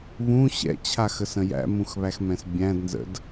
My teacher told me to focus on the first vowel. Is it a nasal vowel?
yes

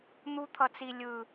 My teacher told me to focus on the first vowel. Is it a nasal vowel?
no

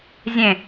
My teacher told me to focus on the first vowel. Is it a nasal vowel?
yes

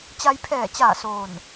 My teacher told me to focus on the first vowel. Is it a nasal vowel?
no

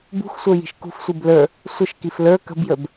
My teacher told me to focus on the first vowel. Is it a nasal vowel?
no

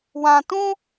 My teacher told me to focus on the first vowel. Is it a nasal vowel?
yes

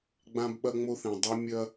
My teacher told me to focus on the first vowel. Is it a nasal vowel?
yes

